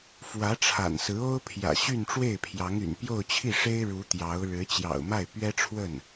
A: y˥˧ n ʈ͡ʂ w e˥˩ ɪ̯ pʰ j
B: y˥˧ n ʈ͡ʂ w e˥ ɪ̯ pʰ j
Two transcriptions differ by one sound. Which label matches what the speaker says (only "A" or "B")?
A